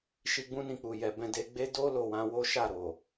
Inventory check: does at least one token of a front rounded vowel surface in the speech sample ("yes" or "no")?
no